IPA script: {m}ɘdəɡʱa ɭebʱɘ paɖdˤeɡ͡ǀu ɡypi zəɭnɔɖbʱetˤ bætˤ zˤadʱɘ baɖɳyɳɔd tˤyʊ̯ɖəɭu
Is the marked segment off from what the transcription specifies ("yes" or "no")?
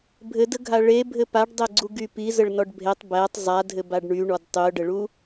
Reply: yes